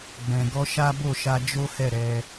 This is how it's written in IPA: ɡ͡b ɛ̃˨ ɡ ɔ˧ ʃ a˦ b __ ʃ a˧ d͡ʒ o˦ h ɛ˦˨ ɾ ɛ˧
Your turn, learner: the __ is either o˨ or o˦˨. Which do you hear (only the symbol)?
o˦˨